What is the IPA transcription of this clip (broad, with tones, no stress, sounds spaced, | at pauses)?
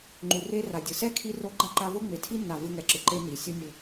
ŋ͡ǃ u˨ r e˦ r a˨ dʲ ɯ˨ s ɛ˦ kʰ i˧ r o˧ ɡ͡ǃ a˦ ǃ a˧ v o˦ ŋ͡m e˨ tʰ i˦ nː a˨ v ɯ˧ ŋ ɛ˨ ǁ ɯ˨ ǃ e˦ n i˨ sʲ o˦ nʲ ɯ˨